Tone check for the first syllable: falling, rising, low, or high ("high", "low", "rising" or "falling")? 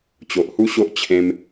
low